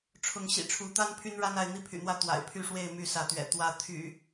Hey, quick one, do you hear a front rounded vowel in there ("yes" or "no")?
yes